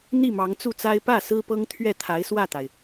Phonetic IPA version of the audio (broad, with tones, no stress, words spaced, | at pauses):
n̪i˥˩mɑ˧˥ŋt͡su˥˩t͡sa˥ɪ̯ pä˥˩ sɹ̩˥pɤ˥ŋ t̪ʰɥɛ˥˩t̪ʰa˧˥ɪ̯swä˥˩t̪a˩ɪ̯